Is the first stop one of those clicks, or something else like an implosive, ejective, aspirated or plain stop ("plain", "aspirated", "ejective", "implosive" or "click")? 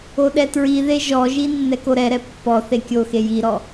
implosive